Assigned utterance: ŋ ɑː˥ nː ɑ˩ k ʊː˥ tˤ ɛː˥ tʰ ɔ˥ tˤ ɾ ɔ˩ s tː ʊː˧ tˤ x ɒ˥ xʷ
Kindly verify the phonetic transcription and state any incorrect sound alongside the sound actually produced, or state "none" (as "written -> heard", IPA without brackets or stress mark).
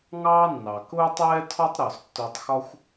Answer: none